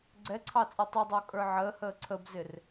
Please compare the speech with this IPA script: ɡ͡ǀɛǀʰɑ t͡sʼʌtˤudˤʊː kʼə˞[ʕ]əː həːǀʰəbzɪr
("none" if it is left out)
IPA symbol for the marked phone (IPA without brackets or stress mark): ʕ